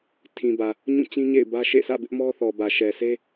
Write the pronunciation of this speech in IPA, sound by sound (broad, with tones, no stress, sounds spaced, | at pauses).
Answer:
tʰ ĩ˨ b ä˨ | ɲ ũ˦˨ t͡ɕ ĩ˦ ɲ ḛ˦˨ ɪ̯ b ä˦ ʃ ḛ˦˨ s ä̰˦˨ b ɪ˦ ʔ m ɔ˦ θ ɔ˨ b ä˨ ʃ ɛ˨ s e˦